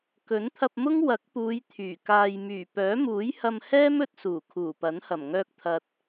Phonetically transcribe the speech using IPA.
kɵ˨˥nt̪ʰɐ˧p̚mʊ˥ŋ wɐ˨˥k̚puː˨˧j t̪ʰyː˨˩kaː˧j myː˨˩pœː˨˥ muː˨˥jhɐ˧mhɛː˥m ɵ˧t̚suː˨˩ kʰuː˨˩pɐ˨˥nhɐ˨˩m ŋœː˧k̚t̪ʰɐ˨t̚

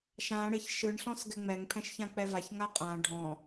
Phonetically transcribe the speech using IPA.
ʃã ɽɪç ʃɯɳɬɔ̃s ɡɛŋ͡mɛŋpʰɛ̃ʃ çãk͡pɛvaçŋa qʼã ɖʱɔ̃

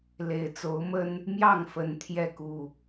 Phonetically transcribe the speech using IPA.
le˨˦ɪ̯t͡so˨˦ʊ̯mə˦n | mjɑ˥˨ŋfə˨˦n t̪ʰjɛ˥˨ku˥˨

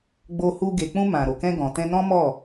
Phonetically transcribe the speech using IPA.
ɡ͡bo˧hu˧ ɡe˨k͡pũ˧ mã˨ ɾo˨kɛ̃˧ ɡɔ̃˨tɛ̃˧nɔ̃˦ mɔ˦˨

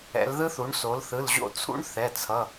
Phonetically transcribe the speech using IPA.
ɛ̰˩˧lðɯ˦˥θu˩˧ɳ so˩˧lθɯ˩˧˩lʑo̰˦˨t͡sʰṵ˦˥ɳ θɛ˩˧˩t͡sʰʌ˩˧˩

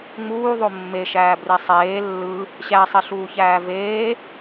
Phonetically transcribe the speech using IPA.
ŋ͡muːðˤo mːeʃæːbri sˤeː lːɯ | ɕæsˤiɬuːçæː veː

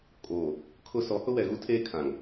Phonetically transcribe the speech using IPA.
kʼoː˨ | kʰʊ˦ sɔ˨˦hʊ˦wɛ˨ɣu˦ tʰeː˦ kʰã˨ŋ

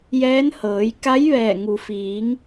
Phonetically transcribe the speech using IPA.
jɛː˧˥nhɤː˩˧j ka˧˥jʋɛː˧˩ ŋu˩fiː˩˧ŋ

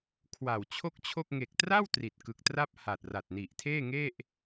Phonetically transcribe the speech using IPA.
kʰwa˨˩wt͡ɕʰo˥˩k̚t͡ɕʰo˥˩k̚ ŋe˨˩k̚tra˥˩w tri˨˩t̚kɯ˨˩k̚tra˥˩p̚ha˨˩t̚ ra˨˩t̚ni˨˩ʔtʰeː˥˩ŋe˥˩ʔ

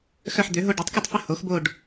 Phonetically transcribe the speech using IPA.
xœ˦˨ħd̪ø˩˥ɦo˦˨ ɖu˩˥tˤku˦˨tˤfə˦˨ ho˩˥xbo˦˨ɖ

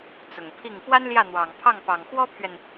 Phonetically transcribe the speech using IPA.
t͡sʊ˨˩ŋpʰi˥˩ŋ pwa˥nljä˥˩n̪wɑ˨˩ŋpʰɑ˥˩ŋ pɑ˨˩ŋxwɔ˥pʰɥɛ˨n

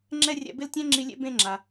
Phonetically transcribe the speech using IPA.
ŋ͡ǁɛ˥rʲɛ̰˦bɪ˥ltʲɛ̃˥ ŋ͡ǁi˦lʲḛ˥ bẽ˦ŋ͡ǁa˨

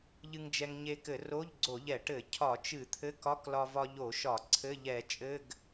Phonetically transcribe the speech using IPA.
ʎɨ˧ŋd͡ʒɛ˧ŋɲe˧kɘ˧˩˧ ro˧˥˧ʎɡ͡ǀo˧˩˧ʎɛ˧˩˧ʈɘ˧˩˧ cʰɒ˧˩˧t͡ʃɨ˧˩˧ t̪ʰɘ˧˥˧ kɒ˧˥˧klɒ˧vɒ˧ ʎo˧˩˧ʃɒ˧˩˧ ǀʰɘ˧˥˧ʎɛ˧˩˧t͡ʃʼɘ˧˥˧ɡ

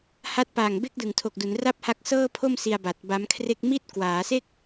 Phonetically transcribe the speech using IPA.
ha˦˥t̚pa˨˩ŋ be˥˩k̚dɯ˨˩ŋtʰo˨˩k̚du˩˦n ra˥˩p̚ha˦˥k̚sɤː˥˩pʰo˥˩m si˧a̯ ba˨˩t̚ba˦˥mkʰre˥˩k̚ mi˥˩t̚kwaː˩˦se˥˩k̚

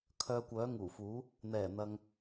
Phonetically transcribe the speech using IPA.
kʰœː˧kʷœː˨˥ŋuː˨˩fuː˨˥ | n̪ɛː˨˩n̪ɐ˨ŋ

